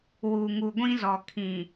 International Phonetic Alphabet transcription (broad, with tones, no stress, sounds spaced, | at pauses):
w u˨ ŋ u˨ ɡʷ ĩ˦ z ɔ˨ kʰ ĩ˨